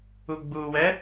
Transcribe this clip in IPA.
u ɡ͡b u w ɛ

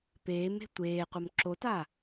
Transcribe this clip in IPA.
p eː m e̤ tʷ eː qʷ ə m ǁ o t a

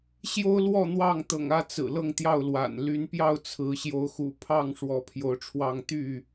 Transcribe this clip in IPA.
ɕ j o˦ ʊ̯ l w ɔ˥˨ n̪ w ɑ˥˨ ŋ t̪ ɤ̰˨˩ ŋ ä˥˨ t͡s ɹ̩˨˩ l ɤ˥˨ ŋ t̪ j ɑ˥˨ ʊ̯ l w a̰˨˩ n l y˨˦ n p j ɑ˥˨ ʊ̯ t͡sʰ ɹ̩˨˦ ɕ j o˨˦ ʊ̯ x ṵ˨˩ pʰ ɑ˥˨ ŋ ʂ w ɔ˨˦ pʰ j o˨˦ ʊ̯ ʈ͡ʂʰ w ɑ˥˨ ŋ t̪ y˥˨

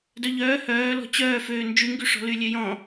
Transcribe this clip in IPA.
d œ ʎ œː h œː l ɔ̤ t͡ɕ œː f øː n d͡ʒ y ŋ ɡ y ʂ ɔ̤ l y lʲ ø j ɔ̃

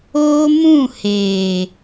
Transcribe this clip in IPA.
oː˦ m ũ˦˨ h eː˨

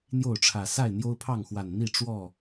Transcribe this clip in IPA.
n̪ j o˥˨ ʊ̯ ʈ͡ʂʰ ä˨˩ s a˥˨ ɪ̯ n̪ j o˦ ʊ̯ pʰ ɑ˥˨ ŋ x w a˨˩ n n̪ i˥˨ ʈ͡ʂ w ɔ˥˨

